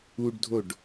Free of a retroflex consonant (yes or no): no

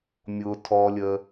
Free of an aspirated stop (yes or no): no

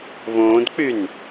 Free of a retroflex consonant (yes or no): yes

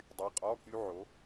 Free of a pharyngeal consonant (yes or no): no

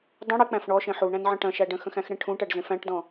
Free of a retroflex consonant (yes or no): no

